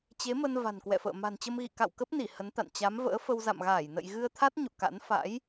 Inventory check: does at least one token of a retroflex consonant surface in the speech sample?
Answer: no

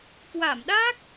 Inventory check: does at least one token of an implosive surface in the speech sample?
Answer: yes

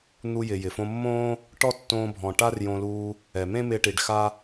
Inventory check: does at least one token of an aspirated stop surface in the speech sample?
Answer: no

